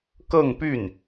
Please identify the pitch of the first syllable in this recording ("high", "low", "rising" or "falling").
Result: falling